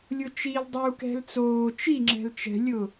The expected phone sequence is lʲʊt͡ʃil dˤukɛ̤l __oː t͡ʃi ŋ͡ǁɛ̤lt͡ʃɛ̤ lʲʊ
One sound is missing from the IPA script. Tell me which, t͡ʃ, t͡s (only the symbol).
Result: t͡s